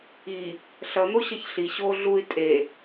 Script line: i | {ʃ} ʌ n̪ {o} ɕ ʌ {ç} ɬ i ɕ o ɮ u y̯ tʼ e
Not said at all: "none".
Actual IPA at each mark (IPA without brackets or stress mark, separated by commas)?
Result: ɬ, o, ç